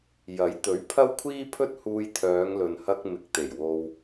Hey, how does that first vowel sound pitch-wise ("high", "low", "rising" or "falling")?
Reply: rising